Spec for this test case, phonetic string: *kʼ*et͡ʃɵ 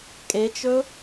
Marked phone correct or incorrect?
correct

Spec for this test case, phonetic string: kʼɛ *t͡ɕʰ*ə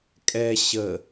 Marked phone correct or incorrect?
incorrect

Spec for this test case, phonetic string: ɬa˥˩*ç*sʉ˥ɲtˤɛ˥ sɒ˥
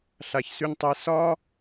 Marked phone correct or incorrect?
correct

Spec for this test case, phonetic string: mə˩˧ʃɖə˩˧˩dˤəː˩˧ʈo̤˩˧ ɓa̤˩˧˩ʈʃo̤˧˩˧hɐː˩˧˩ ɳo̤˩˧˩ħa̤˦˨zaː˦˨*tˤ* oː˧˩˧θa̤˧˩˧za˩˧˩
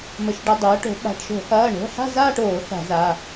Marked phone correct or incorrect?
incorrect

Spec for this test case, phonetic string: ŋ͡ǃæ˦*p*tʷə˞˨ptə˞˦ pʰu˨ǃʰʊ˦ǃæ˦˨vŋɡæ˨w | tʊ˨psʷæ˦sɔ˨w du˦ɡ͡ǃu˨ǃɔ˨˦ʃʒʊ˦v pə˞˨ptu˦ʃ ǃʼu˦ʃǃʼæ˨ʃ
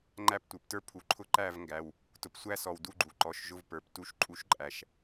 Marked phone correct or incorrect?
correct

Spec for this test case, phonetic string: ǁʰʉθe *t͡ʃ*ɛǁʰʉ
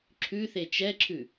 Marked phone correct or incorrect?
correct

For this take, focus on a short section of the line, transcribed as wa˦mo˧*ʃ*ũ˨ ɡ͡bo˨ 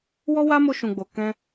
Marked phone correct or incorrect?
correct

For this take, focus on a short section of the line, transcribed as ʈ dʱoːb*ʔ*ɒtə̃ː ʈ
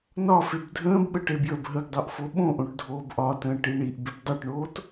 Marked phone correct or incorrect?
correct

